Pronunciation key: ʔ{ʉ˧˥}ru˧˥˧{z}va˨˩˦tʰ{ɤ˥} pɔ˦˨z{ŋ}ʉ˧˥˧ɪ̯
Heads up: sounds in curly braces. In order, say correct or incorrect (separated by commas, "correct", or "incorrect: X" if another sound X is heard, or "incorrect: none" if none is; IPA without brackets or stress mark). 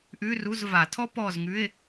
incorrect: ʉ˧˥˧, correct, incorrect: ɔ˥, correct